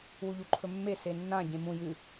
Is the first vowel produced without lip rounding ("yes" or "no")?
no